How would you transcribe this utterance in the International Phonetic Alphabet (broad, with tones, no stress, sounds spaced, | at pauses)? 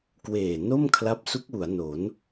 k w eː˨˩ n o˥˩ m kʰ l a˦˥ p̚ s u˦˥ k̚ w u˩˦ a̯ n o˩˦ n